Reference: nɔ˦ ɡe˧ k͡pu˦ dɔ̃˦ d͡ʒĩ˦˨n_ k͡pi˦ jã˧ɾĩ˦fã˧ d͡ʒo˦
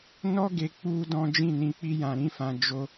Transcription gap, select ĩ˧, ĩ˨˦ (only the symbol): ĩ˧